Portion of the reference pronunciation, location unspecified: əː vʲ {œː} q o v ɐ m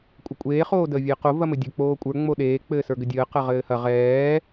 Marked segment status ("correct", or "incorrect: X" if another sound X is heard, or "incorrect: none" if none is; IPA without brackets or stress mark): incorrect: əː